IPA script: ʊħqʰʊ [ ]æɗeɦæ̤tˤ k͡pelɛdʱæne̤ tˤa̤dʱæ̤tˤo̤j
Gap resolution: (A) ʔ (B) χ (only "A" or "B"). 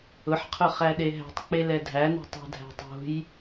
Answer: B